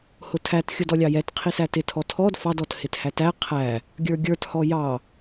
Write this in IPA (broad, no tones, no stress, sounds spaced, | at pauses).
h ʊ tʰ æ t xʲ ʊ d ɔ lʲ ɑ j ɛ t qʰ i s æ t ɪ tʰ ɔ tʰ ɔ d f ɑ d ɔ t h ɪ t h æ t æ qʰ æ | ɡʲ ə˞ ɡʲ ə˞ t h ɔ j ɑ